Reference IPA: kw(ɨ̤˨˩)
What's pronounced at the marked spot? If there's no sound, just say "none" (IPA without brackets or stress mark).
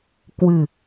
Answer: ɨ̤˨˩